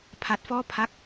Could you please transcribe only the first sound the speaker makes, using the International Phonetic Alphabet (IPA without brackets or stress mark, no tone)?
pʰ